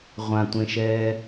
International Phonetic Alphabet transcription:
ʁʷãtʷẽʃɛː

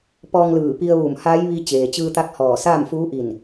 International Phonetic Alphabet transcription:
pɔː˧ŋlɯː˧˩ pi˧ə̯ʋuː˧˩mhaː˧˥jʋi˧ t͡ɕeː˩t͡ɕɯː˧t̪a˧˥k̚ hɔː˧˩saː˥˨m fuː˧˥ʔi˧˩n

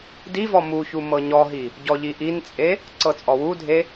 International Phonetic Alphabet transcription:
divɔ muçu mɤɲɔɦi | ɟɔʎiʔint͡sʼe | ǀɤt͡sʼɔwudʱe

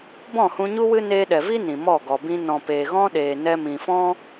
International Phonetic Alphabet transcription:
bɔ̃˦˨hũ˧ɲu˦wɨ˦ neː˧ɗɛ˨vi˦ nĩ˨mɔ˦˨ ɡɔ˨bĩ˧ nɔ̃˨peː˨ɣɔ̃˦ɗeː˨ nɛ˧mĩ˨fɔ̃˦

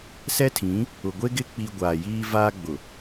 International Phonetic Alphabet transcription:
sɛ˦tʰĩ˨˦ | ʊ˨ɡʷe˦ɡɪ˦ k͡pi˦ ɡʷaː˨jiː˦vaː˦ɡ͡bʊ˨

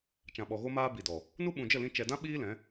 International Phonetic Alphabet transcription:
t͡ʃã˨ɓɔ˨ɣo˧maː˧ bi˨dɔ˨ | nu˦ɓũ˨d͡ʒə˦˨lĩ˧ t͡ʃɛ˨dã˦ ɓiː˦lɛ̃˨˦

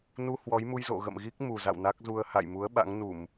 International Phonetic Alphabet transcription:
nu˧ hwɔ˨˦jmu˧jzo̰˧˨ ɣə̰˧˨mɣi˦˥k̚ mu˨˩za̰˧˨w na˦˥k̚zu˧ə̯ ha̰˧˨jmu˨˦ə̯ ɓa̰˧˥ŋ nu˧˩˨m

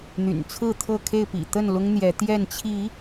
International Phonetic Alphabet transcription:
n̪y̰˨˩nt͡sʰɹ̩˥˨t̪ʰɤ˥˨kʰe˥˨ɪ̯ pḭ˨˩t̪ə˥˨n lʊ˦ŋn̪jɛ˨˦t̪jɛ˥˨n t͡ɕʰi˨˦

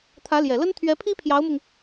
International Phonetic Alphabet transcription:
t̪ʰä˧˥ljɛ˨˩lə˥n t̪ʰɥɛ˧˥pʰi˥pʰjɑ˧˥ʊ̯mʊ˧ŋ

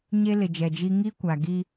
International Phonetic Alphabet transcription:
ɲe˦lɪ˨d͡ʒɛ˨d͡ʒi˦ ŋi˦kʷa˨ɡi˦

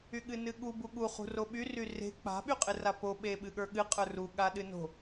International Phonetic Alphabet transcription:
yɠɨnɨɠu buɠu χṳroɓy ryre̤ k͡pa̤ ɓyqʼɨrapo ɓeɓɨɠə˞ɠɨ qʼə˞ru ɠaɗɨno̤

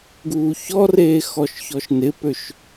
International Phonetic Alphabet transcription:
ɡuːçɔreː xɔʃçɔʃnɪpøʃ

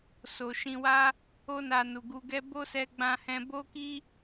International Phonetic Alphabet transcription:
so˨ʃĩ˧wa˦ | o˧na˨ nu˨ɡu˧ ɡɛ˧ bo˦sɛ˧ɡ͡bã˧ hɛ̃˧bo˦ki˦

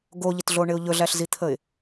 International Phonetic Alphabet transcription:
ɡoʎɪtɮoɳɪʊ̯ ʎɵɮæɬzit̪ʰəɪ̯

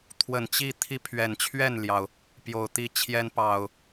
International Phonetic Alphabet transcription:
t̪ʰwə˨˩nt͡ɕi˥˨ t̪ʰi˦pʰɥɛ˨˩n t͡ɕʰɥɛ˥˨nljɑ˩ʊ̯ | pjo˨˩ʊ̯t̪i˥˨t͡ɕʰjɛ˦n pɑ˨˩ʊ̯

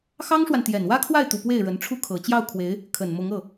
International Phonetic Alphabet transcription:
xɑ˥ŋʂwa˨n t̪jɛ˨˩nwä˥kʰwa˥˩ɪ̯t̪u˨˩ pwe˥˩ɪ̯ɻə˧˥n ʈ͡ʂʰu˥˩kʰɤ˨˩ t͡ɕjɑ˥˩ʊ̯kʰwe˧˥ɪ̯ | kʰə˨˩nmʊ˧˥ŋɤ˥˩

